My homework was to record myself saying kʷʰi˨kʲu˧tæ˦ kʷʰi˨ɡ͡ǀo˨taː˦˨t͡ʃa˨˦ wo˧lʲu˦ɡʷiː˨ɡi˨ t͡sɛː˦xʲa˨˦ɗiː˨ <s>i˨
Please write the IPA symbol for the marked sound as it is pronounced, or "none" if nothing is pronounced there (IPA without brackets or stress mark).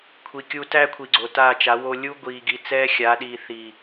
θ